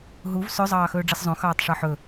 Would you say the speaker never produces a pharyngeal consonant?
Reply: no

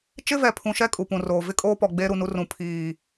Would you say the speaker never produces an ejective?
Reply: no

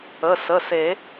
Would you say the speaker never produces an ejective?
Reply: yes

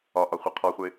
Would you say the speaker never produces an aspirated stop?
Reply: no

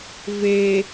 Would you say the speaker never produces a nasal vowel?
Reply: yes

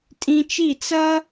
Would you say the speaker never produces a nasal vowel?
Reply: no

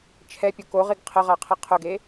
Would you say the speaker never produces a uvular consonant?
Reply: no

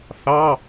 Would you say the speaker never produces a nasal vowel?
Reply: yes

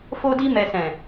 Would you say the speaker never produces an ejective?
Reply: yes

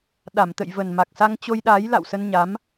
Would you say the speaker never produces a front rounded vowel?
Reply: yes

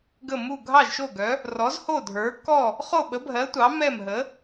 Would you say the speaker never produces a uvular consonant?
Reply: no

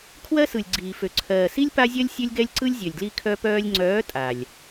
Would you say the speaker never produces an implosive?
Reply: yes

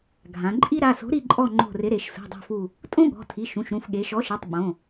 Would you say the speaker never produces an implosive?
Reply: no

